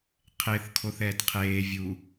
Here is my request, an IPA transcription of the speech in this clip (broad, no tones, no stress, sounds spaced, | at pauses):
qʰ e θ kʰ o θ ɛː t qʰ eː vʲ u